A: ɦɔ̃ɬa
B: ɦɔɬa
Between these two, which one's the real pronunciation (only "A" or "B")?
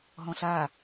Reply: A